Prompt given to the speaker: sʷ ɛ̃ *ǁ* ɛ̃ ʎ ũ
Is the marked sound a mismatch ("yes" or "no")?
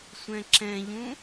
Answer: no